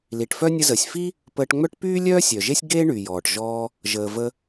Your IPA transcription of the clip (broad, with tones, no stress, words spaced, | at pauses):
li˩ʈfœ˥ nʲə˧zəː˩sʲfi˥ | pəː˧ʈŋ͡mœ˥ʈ pyː˥lʲœː˥sʲœ˩ʒe˥sʲ ɡe˥ ɳy˩jɔː˩ʈʒɔː˥ | ʒəː˩və˧